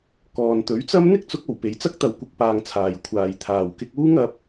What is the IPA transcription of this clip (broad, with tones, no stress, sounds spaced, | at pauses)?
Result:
k ɔː˨ n t̪ ɵ˨˥ ɥ t͡s ɐ˥ m n̪ ɪ˥ k̚ t͡s ʊ˨˥ k̚ o˨˩ w p e˨˧ j t͡s ɐ˥ k̚ t̪ ɐ˨ w kʷ ɪ˧ k̚ p aː˧ ŋ t͡sʰ aː˨ j kʷʰ aː˨ j t̪ʰ aː˨ w k ɪ˧ k̚ uː˥ ŋ ɐ˨˥ p̚